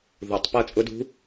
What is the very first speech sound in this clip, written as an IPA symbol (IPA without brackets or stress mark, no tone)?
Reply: ð